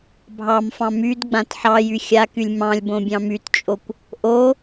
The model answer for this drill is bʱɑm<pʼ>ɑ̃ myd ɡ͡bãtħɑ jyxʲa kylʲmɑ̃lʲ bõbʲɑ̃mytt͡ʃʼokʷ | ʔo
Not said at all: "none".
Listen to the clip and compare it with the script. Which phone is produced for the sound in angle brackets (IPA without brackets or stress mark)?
f